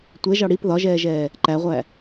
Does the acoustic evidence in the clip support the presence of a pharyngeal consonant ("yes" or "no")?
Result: no